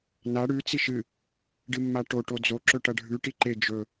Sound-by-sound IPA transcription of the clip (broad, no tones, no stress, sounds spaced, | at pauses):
n a ɽ ʉ t͡s i ʃ ɨ | ɖ ɨ mː a ʈ o ʈ o d͡z o ǁ ɵ ʈ ɐ ɖʱ ʉ ʈ i ǃ e d͡ʒ ɵ